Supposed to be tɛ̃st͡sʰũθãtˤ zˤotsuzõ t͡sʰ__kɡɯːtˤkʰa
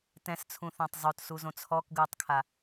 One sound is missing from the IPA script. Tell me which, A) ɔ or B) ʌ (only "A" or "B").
A